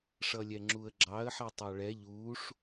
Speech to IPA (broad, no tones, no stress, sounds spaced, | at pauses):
ʂ ʌ lʲ ɛ ŋ͡ǁ u ə̯ ɡ͡ǁ ɑ ə̯ ħ ɛ tˤ ɑ ɭ ɛ ʎ uː ʂ